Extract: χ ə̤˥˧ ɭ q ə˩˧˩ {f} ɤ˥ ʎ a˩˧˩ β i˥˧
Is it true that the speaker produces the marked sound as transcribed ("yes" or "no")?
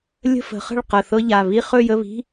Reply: no